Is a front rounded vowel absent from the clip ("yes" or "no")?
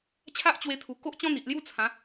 yes